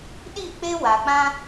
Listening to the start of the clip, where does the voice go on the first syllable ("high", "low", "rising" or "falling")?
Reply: falling